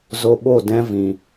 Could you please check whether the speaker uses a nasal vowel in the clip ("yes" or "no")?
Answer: yes